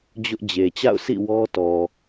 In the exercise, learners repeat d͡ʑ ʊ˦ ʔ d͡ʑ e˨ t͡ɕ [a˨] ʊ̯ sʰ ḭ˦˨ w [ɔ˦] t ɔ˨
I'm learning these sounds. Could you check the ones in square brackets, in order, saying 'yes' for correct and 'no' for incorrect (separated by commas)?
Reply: no, yes